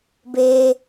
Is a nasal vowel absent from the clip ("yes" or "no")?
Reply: yes